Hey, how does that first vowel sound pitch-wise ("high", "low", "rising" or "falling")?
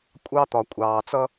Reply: high